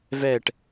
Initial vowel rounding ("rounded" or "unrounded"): unrounded